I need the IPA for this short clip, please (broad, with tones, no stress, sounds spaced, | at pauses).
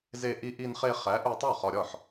z e˧ ʔ i˧ ʔ i˧ n χ e˧ χ æ˨˥ ʔ u˧ tˤ o˥˩ χ ɒ˧ ɾʲ ɒ˥˩ ħ